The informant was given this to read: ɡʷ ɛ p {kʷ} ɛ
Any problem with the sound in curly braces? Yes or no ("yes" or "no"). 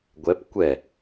no